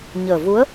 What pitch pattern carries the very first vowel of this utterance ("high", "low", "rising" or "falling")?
low